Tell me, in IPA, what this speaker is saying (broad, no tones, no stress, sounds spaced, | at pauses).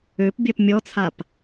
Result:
ø p bʲ ɜ p mʲ ɔ t͡sʰ a p